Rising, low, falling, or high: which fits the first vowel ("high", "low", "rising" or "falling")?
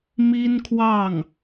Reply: high